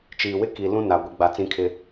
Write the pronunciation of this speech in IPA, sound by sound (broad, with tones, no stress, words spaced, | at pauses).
t͡ʃiː˨wɪ˦ki˨ lũ˦na˨ ɡʷi˨ɡ͡ba˨t͡sĩ˦kʰɪ˦